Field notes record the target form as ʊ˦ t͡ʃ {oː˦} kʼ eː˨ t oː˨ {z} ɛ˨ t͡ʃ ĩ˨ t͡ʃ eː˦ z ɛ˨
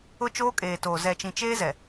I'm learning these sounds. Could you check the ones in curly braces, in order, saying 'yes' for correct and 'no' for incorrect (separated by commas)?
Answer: yes, yes